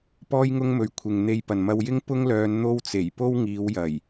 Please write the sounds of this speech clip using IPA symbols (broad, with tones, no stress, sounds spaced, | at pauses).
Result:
p ɔː˥ j ŋ ʊ˥ ŋ m ɵ˧ ɥ kʷʰ ɪ˨ ŋ n̪ e˧ j p ɐ˨ n m ɐ˧ w j ɪ˥ ŋ p ʊ˥ ŋ l œː˧ n n̪ o˧ w t͡s e˨˩ j p o˥ w ŋ iː˨˧ w j ɐ˨˩ j